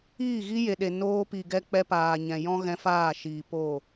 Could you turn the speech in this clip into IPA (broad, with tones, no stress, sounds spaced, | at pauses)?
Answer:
iː˦˨ ɣ i˦ j e˨ ɗ e˨ n oː˧ p i˨ ɡ ɛ˧ k͡p ɛ˧ p aː˨ ɲ ɛ̃˨ j ɔ̃˦ ɣ ɛ̃˧ f aː˦˨ ʃ iː˨ p oː˦˨